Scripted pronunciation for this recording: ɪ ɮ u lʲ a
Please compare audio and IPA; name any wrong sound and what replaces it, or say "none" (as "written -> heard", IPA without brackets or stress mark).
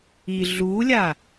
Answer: ɪ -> i